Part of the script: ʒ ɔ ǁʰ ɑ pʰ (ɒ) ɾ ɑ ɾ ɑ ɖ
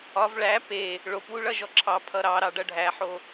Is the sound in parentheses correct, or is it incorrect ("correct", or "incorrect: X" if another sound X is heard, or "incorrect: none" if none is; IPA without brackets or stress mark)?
incorrect: ʌ